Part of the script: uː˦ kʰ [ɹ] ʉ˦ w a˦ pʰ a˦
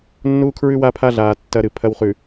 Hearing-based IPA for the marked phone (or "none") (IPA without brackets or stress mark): ɹ